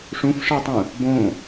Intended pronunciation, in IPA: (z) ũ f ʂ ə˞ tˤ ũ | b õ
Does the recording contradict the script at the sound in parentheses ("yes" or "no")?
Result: yes